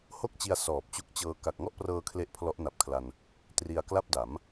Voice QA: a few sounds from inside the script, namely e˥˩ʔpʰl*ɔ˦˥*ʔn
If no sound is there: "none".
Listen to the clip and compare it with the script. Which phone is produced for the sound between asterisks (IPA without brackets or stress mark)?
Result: ɔ˦˥